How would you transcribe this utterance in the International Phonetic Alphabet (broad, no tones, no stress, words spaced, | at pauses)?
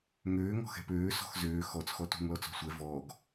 ŋøː ŋɔ̤xɛ̤pøː sɔ̤xzøː xɔt͡s xɔtṳŋ lɔt͡sɔ̤sʷɛ vɔːɡ